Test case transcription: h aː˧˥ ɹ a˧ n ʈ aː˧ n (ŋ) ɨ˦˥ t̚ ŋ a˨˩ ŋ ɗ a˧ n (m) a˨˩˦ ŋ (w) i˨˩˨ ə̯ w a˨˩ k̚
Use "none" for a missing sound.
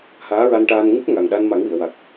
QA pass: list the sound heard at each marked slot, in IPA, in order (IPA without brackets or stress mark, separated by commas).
ŋ, m, w